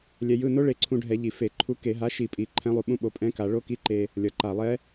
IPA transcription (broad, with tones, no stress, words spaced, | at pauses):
lʲɛ˧jɯ˧˥˧ no˦˥ɭe˧ǀʰũ˧ɖʱɛ˧˩˧ ʎi˨˩fe˧˩˧ ǃʰu˨˥ke˧˩˧ ɦa˨˥ʃi˧˩˧pʼi˨˩ ǃʰɛ̃˦˥lˠu˧ɓũ˦˥ɓo˨˥ pʼɛ̃˦˥ka˧˩˧ ɭo˦˥ki˧˥˧ǃe˧ | lʲʌ˨˩ ǃa˨˩lˠɛ˦˥